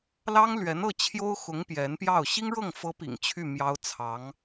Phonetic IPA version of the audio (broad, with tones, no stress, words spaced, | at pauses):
lɑ˥ŋlɥɛ˧˥n ɤ˥˩t͡ɕʰjo˥ʊ̯xʊ˧˥ŋ pjɛ˧˥npjɑ˥˩ʊ̯ ɕi˥ŋɻɤ˥˩ŋ fɤ˧˥ pḭ˨˩ŋt͡ɕʰy˥˩ mjɑ˥ʊ̯ t͡sʰɑ˧˥ŋ